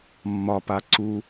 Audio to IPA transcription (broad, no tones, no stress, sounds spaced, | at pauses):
mː ɒ p a ǀ u